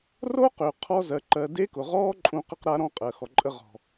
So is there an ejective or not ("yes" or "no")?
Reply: yes